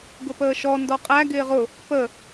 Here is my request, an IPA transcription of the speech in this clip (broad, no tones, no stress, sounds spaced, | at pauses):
ɡ ʊ p əː ʃ ɔ n d ɔ qʼ æ ɡ ɪː ʁ ʊ | p ə